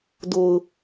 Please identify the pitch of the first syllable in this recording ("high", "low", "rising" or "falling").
low